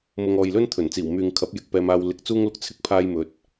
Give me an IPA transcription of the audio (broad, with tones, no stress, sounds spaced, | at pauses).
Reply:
m ʊ˨ ŋ ɔː˨ j l ɵ˥ n t̪ʰ ɵ˨˩ n t͡s iː˨˩ w m yː˨ ŋ kʰ ɐ˨˥ p̚ j ɪ˨ k̚ p ɛː˧ m aː˧ w l ɪ˧ k̚ t͡s uː˥ ŋ l ʊ˧ k̚ t͡sʰ ɪ˥ k̚ pʰ aː˥ j m ɵ˧ t̚